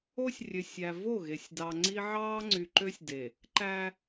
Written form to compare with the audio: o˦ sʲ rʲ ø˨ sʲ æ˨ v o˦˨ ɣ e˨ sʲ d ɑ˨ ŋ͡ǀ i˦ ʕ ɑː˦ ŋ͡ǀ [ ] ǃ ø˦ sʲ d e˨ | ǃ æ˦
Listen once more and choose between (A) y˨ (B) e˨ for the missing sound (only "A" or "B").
A